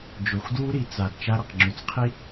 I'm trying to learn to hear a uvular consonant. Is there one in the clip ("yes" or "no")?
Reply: yes